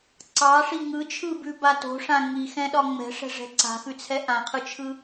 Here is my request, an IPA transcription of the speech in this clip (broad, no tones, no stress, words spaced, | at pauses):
ǀɑʂi ŋɯt͡ʃʰɯbʉba to̤ʂã ŋixɛ̃ɗɒ ŋ͡mɛ̤ʂɛ̤ʐɛ̤ ǀa̤xʉt͡sʰɛ ʔãqʰɯt͡ʃʰɯ